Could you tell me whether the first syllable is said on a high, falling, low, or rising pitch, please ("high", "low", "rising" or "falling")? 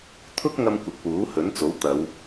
high